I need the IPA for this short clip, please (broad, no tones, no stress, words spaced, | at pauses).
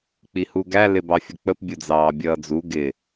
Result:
k͡pihuɡæ lɪbɑfʲək͡pəp bʲʊd͡zɑːbʲʌːd͡zu ɡɪ